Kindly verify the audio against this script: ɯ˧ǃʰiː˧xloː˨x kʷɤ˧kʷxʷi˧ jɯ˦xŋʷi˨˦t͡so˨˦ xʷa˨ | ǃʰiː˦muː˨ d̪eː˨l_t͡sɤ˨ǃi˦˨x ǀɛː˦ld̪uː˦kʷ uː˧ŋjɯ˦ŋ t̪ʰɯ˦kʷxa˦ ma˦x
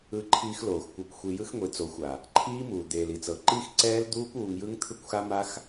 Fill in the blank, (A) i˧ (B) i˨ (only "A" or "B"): B